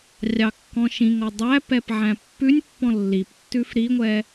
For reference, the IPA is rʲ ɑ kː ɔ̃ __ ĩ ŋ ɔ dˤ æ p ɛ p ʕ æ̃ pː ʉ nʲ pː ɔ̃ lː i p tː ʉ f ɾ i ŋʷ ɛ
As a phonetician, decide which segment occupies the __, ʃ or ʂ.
ʃ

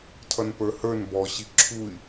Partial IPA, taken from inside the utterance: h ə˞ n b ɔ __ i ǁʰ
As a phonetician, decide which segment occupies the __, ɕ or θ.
ɕ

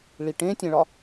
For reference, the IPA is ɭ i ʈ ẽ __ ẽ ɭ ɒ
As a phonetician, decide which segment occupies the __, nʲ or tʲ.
tʲ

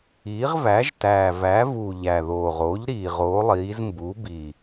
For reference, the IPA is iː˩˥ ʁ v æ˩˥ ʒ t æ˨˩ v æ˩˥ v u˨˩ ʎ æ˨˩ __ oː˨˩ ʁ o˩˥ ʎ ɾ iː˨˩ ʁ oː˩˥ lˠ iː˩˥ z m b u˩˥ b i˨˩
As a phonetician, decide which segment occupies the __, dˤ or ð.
ð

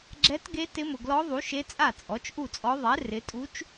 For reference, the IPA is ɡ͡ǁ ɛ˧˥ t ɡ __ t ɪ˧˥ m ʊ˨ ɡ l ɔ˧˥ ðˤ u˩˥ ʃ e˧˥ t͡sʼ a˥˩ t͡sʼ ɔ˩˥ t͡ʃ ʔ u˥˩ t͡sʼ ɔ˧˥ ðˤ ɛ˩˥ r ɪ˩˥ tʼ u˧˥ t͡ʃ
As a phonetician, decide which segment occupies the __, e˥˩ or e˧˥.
e˧˥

